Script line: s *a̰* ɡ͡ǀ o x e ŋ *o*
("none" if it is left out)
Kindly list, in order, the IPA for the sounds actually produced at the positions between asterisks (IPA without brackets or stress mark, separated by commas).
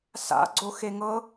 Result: a̰, ɤ